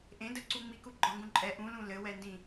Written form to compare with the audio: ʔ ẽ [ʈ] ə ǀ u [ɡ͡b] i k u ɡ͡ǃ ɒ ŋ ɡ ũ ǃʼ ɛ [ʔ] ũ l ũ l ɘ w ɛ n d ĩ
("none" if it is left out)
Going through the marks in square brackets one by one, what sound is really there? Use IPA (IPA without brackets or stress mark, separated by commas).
d, ŋ͡m, ʔ